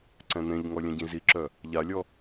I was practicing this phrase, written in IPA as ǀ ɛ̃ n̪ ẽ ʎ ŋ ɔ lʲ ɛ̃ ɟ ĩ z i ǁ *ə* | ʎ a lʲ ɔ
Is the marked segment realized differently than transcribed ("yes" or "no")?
yes